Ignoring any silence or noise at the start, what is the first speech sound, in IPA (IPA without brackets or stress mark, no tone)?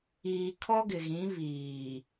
iː